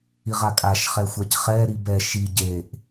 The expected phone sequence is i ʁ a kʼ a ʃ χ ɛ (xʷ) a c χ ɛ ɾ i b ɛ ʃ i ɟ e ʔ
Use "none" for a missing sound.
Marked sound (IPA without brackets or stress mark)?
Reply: xʷ